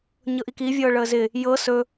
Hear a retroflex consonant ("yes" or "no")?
yes